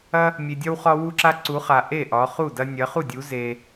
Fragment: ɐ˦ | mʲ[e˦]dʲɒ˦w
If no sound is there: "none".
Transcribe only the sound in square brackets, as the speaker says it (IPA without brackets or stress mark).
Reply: e˨